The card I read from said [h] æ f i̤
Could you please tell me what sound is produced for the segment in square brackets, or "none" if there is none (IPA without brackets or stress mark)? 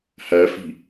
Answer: h